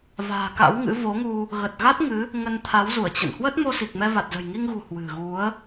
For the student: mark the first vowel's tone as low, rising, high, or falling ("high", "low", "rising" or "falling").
low